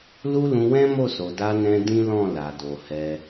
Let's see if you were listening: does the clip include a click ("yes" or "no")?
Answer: no